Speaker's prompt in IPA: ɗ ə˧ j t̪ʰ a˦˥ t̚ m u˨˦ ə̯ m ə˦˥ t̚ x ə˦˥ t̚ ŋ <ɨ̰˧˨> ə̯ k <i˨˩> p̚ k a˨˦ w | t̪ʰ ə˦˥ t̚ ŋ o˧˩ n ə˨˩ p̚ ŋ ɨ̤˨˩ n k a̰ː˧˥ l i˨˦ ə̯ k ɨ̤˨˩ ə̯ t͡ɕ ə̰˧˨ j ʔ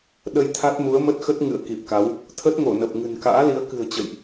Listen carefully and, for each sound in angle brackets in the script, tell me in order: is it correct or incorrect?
correct, correct

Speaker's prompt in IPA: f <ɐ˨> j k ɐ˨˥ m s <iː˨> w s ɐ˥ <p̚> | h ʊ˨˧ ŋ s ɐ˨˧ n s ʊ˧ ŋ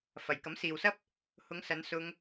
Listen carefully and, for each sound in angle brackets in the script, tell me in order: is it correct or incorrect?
correct, correct, correct

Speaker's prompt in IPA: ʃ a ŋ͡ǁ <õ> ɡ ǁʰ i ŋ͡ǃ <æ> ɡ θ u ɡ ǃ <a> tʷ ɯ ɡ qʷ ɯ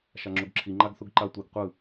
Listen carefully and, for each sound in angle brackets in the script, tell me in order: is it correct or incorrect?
incorrect: o, incorrect: a, correct

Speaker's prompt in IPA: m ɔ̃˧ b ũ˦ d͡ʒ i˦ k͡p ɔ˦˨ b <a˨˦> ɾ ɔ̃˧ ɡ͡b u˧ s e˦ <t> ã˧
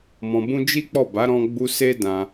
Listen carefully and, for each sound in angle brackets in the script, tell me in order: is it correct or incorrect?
correct, incorrect: d

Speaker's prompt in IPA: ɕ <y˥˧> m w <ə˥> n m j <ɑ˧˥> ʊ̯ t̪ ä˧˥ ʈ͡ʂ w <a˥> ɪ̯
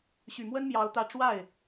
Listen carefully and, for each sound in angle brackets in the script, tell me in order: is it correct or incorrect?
incorrect: y˨˩, correct, correct, incorrect: a˥˩

